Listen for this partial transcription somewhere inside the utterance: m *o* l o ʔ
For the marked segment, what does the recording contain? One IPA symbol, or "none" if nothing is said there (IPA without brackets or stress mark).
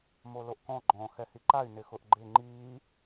o